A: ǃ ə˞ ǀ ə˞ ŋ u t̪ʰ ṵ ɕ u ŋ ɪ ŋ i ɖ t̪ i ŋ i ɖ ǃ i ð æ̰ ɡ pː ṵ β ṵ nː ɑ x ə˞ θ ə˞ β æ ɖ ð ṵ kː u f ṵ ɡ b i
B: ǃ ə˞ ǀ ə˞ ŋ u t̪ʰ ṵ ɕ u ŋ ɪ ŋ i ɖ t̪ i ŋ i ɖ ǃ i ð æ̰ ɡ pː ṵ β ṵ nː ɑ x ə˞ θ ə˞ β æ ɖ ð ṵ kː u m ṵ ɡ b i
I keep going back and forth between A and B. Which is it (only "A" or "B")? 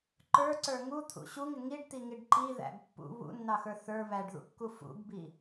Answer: A